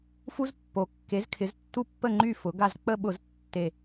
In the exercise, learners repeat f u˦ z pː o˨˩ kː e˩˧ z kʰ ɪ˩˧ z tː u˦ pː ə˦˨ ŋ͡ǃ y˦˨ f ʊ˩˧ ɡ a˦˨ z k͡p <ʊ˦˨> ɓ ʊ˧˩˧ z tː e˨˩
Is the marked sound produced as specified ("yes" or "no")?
no